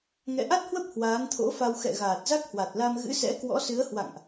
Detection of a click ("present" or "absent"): absent